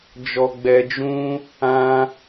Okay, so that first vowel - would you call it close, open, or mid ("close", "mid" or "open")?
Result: mid